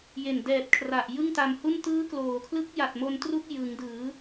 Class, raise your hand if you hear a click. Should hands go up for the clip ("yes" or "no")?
no